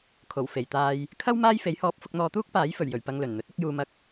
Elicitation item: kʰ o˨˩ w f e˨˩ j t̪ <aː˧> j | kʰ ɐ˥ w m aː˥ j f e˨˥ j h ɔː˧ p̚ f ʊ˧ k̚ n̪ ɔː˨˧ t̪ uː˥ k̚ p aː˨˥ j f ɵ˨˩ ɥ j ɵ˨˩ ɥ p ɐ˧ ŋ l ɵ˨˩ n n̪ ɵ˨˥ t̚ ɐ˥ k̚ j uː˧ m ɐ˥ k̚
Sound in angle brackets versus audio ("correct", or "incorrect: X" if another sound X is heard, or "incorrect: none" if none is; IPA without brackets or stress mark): correct